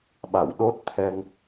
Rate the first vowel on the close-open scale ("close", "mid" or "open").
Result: open